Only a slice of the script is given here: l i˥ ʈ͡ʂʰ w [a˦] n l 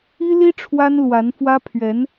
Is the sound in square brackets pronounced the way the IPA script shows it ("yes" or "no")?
no